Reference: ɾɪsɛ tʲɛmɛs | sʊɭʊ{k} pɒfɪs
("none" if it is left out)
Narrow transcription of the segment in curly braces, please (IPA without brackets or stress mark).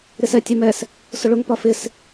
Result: ŋ